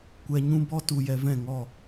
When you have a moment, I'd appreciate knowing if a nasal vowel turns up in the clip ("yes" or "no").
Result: yes